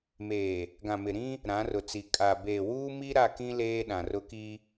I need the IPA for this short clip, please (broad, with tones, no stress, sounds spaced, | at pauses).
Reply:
m eː˨ | ɡ ã˨ m ɪ˨ ɾ ĩ˦ | ɾ ã˨˦ r ʊ˨ t͡s i˨ kʼ a˨ b eː˨ w uː˦ m i˦ ɾ a˦˨ k ĩ˦ l eː˦ ɗ ã˨ r ʊ˦ k i˦